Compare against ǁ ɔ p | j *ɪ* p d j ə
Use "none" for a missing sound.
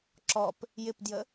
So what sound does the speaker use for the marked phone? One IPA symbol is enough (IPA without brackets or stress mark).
ɪ